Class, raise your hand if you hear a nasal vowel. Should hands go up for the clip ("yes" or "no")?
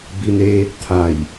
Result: no